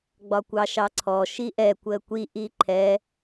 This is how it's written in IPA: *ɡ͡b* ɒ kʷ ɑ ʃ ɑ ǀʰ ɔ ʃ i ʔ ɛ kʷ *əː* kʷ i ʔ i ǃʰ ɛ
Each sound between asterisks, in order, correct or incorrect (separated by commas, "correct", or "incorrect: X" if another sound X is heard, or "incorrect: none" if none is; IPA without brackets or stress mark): correct, correct